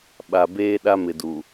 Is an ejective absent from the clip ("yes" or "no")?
yes